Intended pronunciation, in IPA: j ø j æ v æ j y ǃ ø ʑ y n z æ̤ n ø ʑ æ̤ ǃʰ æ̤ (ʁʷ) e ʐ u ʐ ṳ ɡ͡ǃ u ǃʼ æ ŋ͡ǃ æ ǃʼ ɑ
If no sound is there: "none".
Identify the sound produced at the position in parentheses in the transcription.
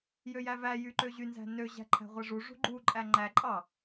ʁʷ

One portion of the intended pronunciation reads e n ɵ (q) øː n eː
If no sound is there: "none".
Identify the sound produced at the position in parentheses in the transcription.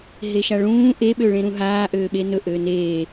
ʔ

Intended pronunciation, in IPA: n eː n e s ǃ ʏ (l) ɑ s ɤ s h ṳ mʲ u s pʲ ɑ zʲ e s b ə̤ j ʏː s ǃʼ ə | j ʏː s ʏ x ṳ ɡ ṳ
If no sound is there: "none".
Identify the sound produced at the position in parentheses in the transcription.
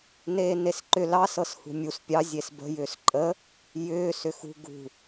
l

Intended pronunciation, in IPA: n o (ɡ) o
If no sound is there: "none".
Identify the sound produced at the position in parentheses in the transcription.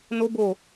b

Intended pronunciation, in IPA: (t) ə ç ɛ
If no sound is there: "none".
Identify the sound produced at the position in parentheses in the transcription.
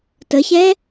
t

